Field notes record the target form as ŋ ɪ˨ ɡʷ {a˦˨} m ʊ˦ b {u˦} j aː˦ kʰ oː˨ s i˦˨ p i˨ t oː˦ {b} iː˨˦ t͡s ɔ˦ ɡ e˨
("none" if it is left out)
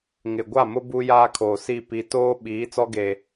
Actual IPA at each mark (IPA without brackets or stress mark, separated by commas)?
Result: a˦˨, u˦, ɓ